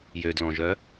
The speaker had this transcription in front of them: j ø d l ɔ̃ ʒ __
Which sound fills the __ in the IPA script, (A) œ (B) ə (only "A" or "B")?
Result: A